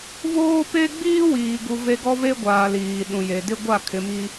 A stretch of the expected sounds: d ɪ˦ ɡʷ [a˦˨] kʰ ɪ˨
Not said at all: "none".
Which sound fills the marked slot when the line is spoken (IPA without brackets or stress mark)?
a˦˨